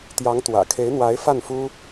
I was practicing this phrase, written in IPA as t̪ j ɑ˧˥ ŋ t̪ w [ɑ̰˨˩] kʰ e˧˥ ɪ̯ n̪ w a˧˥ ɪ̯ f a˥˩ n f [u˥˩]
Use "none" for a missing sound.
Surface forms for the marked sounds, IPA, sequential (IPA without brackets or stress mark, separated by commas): ä̰˨˩, u˥